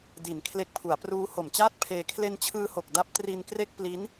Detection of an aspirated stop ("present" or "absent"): present